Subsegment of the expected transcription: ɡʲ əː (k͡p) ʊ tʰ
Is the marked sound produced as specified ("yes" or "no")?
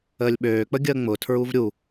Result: no